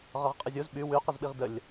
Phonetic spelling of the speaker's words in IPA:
ʁ ɒ ʁ qʼ ə zʲ o z ɓ y w y q ə z ɓ i ʁ d ə lʲ

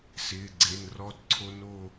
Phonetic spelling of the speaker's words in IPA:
s ɪː˩˧˩ ɡ͡ǀ e˩˧˩ n r ɔ˦˥ d ǀʰ o˦˥ n o˦˨

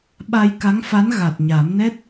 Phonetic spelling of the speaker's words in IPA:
ɓ a˧ j k a˧˥ ŋ f a˧˥ n ɣ a˨˩ t̚ ɲ a˨˩˦ m n ɛ˦˥ t̚

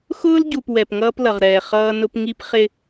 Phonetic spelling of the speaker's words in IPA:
x ʊː˦ l ɟ u˨ p w ɛ˨ p ŋ ʌː˦ p l ʌ˨ ʁ ɾ ɛː˨ χ ʌː˦ n ʊ˦ p ŋ i˦ p χ ɪ˦

